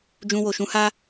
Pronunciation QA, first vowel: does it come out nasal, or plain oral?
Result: nasal